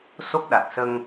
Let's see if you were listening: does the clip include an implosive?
yes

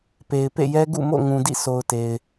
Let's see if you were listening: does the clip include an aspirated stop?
no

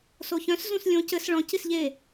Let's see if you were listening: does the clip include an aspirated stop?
no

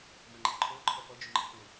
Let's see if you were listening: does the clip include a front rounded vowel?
yes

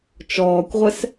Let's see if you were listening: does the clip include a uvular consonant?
yes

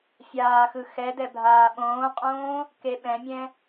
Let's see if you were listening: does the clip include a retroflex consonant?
no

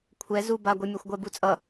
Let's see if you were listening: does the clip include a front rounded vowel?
no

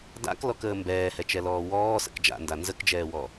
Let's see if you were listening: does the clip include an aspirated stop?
no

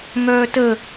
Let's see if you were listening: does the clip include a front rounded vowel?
yes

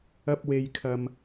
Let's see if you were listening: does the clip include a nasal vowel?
no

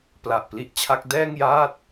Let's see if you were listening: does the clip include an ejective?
no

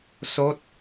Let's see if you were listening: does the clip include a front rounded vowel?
no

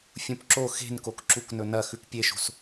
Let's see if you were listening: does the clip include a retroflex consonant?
no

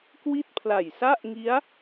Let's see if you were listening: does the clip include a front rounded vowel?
no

